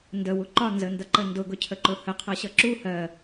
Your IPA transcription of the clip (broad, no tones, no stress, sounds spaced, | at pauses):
n d ə w u ǃ ɒ n z ə n d ʌ ǃ ə n d ʊ ɡ ʊ cʰ ə ǃ ʊ h ə qʰ ʌ ɕ ʌ ǁ u h ɜ